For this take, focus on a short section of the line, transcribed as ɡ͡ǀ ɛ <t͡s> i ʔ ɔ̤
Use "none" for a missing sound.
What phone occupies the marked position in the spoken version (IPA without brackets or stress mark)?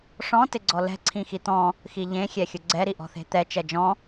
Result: ɾ